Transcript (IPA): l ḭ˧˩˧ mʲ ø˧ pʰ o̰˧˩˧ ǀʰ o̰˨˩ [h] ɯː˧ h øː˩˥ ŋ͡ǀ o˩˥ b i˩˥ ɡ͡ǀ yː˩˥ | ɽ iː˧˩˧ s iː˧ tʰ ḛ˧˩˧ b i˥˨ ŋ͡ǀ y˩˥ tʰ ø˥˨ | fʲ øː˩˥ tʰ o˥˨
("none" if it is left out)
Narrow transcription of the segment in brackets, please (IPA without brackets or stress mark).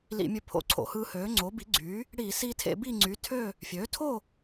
h